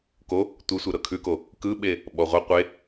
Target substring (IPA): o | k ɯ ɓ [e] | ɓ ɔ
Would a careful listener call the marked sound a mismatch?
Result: no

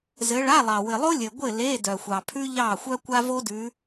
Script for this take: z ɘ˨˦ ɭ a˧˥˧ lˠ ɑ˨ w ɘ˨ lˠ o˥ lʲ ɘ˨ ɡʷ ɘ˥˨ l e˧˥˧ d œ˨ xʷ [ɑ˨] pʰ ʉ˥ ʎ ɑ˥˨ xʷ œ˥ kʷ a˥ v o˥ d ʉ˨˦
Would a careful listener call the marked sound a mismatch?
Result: no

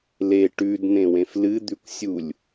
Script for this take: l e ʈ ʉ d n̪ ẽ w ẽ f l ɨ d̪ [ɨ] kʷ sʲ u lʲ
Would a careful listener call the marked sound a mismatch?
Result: yes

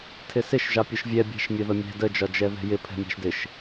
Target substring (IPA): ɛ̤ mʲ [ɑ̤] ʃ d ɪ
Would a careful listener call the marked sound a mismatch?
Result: no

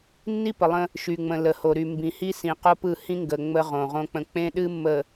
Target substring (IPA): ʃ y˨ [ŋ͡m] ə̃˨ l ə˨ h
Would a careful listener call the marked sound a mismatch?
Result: no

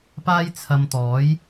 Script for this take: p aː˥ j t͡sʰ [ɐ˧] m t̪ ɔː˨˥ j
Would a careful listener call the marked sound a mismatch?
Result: no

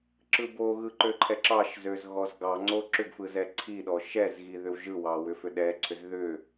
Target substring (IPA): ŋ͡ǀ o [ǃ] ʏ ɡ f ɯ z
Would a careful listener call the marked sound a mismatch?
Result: yes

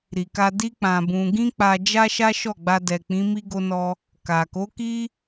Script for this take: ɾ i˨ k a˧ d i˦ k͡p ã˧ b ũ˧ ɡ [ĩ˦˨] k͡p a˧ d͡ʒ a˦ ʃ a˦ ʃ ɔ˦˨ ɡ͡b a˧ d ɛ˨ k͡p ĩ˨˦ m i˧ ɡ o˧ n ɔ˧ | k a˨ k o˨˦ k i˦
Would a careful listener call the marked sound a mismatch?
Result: yes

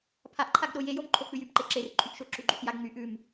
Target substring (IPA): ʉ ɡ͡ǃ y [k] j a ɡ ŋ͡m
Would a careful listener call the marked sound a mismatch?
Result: no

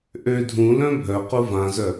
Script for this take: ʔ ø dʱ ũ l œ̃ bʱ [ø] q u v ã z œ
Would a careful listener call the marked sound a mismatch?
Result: yes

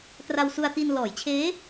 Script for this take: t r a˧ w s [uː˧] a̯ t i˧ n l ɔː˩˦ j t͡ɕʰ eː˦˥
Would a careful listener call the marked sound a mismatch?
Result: yes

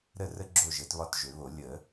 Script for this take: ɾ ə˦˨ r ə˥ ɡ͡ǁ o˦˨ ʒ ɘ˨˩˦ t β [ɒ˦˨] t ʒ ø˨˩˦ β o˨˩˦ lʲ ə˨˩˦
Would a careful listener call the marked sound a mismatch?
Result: no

